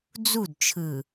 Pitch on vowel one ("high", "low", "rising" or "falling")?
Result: falling